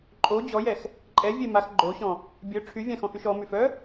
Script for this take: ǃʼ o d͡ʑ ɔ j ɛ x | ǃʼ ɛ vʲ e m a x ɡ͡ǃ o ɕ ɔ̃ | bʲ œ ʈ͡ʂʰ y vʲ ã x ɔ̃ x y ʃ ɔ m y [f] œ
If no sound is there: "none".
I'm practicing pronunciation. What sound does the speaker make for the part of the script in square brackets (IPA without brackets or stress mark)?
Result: f